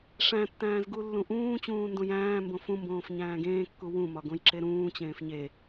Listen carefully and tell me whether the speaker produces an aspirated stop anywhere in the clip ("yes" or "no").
no